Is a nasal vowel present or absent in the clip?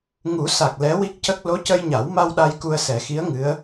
absent